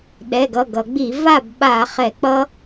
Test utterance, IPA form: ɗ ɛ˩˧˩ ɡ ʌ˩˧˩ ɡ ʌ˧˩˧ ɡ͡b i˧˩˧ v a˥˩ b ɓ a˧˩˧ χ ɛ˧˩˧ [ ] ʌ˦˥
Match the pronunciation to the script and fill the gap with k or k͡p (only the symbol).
k͡p